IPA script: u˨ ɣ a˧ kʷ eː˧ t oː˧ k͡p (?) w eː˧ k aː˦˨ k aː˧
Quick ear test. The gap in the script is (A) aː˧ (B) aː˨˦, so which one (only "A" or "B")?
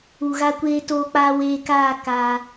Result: A